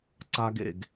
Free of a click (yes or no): no